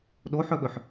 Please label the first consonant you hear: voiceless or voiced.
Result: voiced